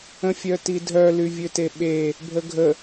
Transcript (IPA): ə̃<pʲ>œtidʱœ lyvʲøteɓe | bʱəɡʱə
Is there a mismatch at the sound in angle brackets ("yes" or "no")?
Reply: yes